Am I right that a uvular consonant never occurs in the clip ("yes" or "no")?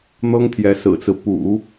yes